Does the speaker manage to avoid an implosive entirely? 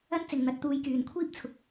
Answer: yes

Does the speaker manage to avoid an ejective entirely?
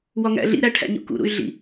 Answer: yes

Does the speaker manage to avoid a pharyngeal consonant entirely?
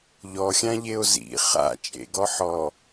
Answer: no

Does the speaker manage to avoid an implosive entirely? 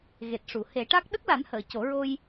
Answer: no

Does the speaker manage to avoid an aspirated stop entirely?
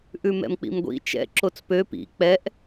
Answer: yes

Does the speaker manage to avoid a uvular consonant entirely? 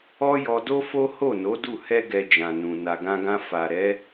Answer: yes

